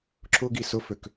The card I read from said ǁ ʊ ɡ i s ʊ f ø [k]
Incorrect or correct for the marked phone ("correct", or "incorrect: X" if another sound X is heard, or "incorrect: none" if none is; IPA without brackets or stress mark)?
correct